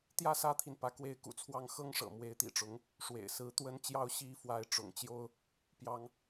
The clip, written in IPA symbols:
t̪ j ä˥˩ s ä˥ t̪ʰ i˨ n p ä˧˥ k w e˧˥ ɪ̯ k ṵ˨˩ t͡sʰ w ɑ˥˩ ŋ x ɤ˥ ŋ ʂ ɤ̰˨˩ m w e˧˥ ɪ̯ t̪ ḭ˨˩ ʈ͡ʂ ʊ˧˥ ŋ | ʂ w ḛ˨˩ ɪ̯ s ɹ̩˧˥ t̪ w ə˧˥ n t͡ɕ j ɑ˧˥ ʊ̯ ɕ i˧˥ f w a˧˥ ɪ̯ ʈ͡ʂ ʊ̰˨˩ ŋ t͡ɕ j o˥ ʊ̯ | p j ɑ˥ ŋ

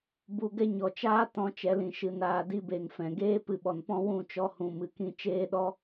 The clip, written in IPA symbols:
b u˧ ɡ ɛ˦ ɲ ɔ˨ t͡ʃ aː˦ t ɔ̃˧ t͡ʃ ɛ˨˦ l ĩ˨ ʃ ɨ˧ n aː˧ d i˦ b e˨ ŋ f ɛ̃˨ ɡ eː˦ p ɨ˧ ɓ ɔ˨ n p ɔ̃˦ w ũ˦˨ t͡ʃ ɔ˧ h ũ˨ m ɨ˨ k ĩ˧ t͡ʃ eː˦ ɗ ɔ˦

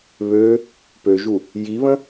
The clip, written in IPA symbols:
β ø | p ø ʒ u | j i β ə̃

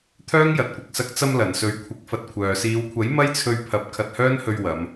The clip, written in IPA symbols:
t̪ʰ œː˥ ŋ j ɐ˨ t̚ kʷ ɐ˨ k̚ s ɐ˧ k̚ t͡s ɐ˧ m l ɐ˨˩ n s ɵ˨˥ ɥ kʷʰ ɪ˨˥ k̚ f ɐ˧ t̚ kʷʰ œː˨ s iː˨˧ w kʷʰ ɐ˨˥ j m ɐ˥ j t͡sʰ ɵ˧ ɥ pʰ ɐ˨˥ p̚ kʰ ɐ˧ t̚ h œː˥ n h ɵ˧ ɥ w ɐ˨˧ m

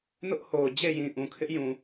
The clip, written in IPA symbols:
n ʊ˦ ʔ h o˨ ʊ̯ d͡ʑ e˦˨ j ĩ˨ ʔ ũ˨ kʰ ɪ˦ ʔ j ũ˨

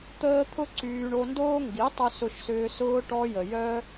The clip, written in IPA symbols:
t̪ əː˦ t̪ʰ ʊ˦ ǀ yː˧ ɳ o˧ n d oː˦ ŋ ɡ i˨˦ tˤ ʊ˧ s ʊ˧ ʃ s ʏː˧ s ʊː˧ ʈ ɔ˧ j ə˨ j œ˧

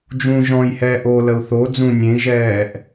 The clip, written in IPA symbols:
d͡ʒ ũ ʒ ɔ̃ j h ɛː ʔ o l ə u̯ θ o d͡z ũ nʲ ẽ i̯ ʒ ɛː ʔ

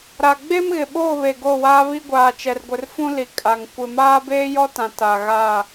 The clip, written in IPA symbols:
ɾ a˨ ɡ͡b e˦ m ɣ ɪ˨ ɓ o˦˨ β e˨ ɡ o˦˨ w aː˦ β i˦ ɡʷ aː˨ t͡ʃ ɛ˨ r ɡʷ ɪ˨ r f ũ˦ l i˨ kʼ a˨ ŋ kʷ ɪ˨ m aː˦ b eː˦ j ɔ˦ t ã˨ t a˨ ɣ a˦˨

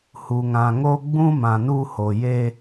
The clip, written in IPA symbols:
h u˨ ŋ ã˨ ŋ o˦ ɡ͡b ũ˦ m ã˨ n u˦ h o˨ j e˦

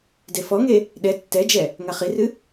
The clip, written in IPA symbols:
d e f ɔ ŋ e | ɗ ɛ tː ɛ d͡ʒ ɛ | ŋ a χ i r ɨ

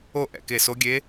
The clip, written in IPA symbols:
o˥˩ ʔ ɛ̰˧˩ k e˧˩ s o˧˥ ɡʲ e˧˥

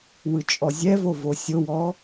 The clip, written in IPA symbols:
w ɯ t͡ʃʼ ɔ zʲ ɛ v o v o sʲ o w ɔ

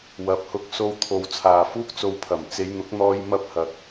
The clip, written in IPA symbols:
w ɐ˨ p̚ h ʊ˧ k̚ s o˧ w t̪ʰ o˨ w t͡sʰ aː˨ f uː˥ k̚ t͡s o˧ w pʰ ɐ˨˩ m t͡s e˨˧ j n̪ ʊ˨˥ k̚ n̪ ɔː˧ j m ɐ˥ p̚ h ɐ˨ k̚

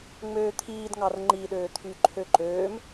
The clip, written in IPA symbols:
ŋ͡m øː t̪ʰ iː d ŋ ɑ r ŋ͡ǃ i ɗ øː t̪ʰ y ǃʰ ø ǃ øː m

